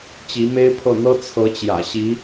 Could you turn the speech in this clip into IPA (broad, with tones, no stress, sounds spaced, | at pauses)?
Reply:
t͡ɕ i˧˥ m e˥ ɪ̯ pʰ ɤ˥˩ n̪ ɤ˥ t͡sʰ ɤ˧˥ t͡ɕ j ä̰˨˩ ɕ i˧˥